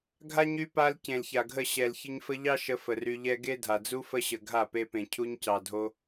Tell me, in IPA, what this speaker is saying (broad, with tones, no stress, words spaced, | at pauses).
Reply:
ɡʱa˦ɲy˧ pa˧l cẽ˨lça˨ɡʱə˦˨ ɕɛ˨l çə˧ɲfə˧ʎɑ˦ ʃə˧fə˨ry˧ʎɛ˦ ɡe˦dʱa˨ d͡zu˦fə˦ɕə˨ ɡʱa˦˨pe˧pẽ˨ cʰu˧ɲcɑ˨dʱo˧